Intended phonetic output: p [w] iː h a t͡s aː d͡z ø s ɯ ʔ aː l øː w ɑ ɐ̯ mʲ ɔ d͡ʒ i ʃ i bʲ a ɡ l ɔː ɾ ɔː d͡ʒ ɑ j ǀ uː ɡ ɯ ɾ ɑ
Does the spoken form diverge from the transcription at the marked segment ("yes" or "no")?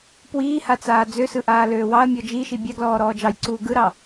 no